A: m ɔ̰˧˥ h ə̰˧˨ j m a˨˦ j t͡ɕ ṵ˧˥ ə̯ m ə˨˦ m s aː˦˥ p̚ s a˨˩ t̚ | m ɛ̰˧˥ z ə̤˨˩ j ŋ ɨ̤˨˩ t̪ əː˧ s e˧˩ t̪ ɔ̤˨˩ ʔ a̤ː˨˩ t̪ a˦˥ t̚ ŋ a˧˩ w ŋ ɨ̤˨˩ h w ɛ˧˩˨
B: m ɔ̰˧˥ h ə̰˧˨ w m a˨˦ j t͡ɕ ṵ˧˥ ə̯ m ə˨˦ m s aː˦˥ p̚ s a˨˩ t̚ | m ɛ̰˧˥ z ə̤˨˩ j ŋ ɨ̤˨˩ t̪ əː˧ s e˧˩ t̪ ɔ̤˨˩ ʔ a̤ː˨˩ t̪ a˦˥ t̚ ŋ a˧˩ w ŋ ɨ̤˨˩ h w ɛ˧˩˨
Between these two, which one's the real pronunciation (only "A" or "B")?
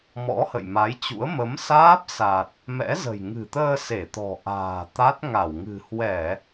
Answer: A